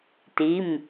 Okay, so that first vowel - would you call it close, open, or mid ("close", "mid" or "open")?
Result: close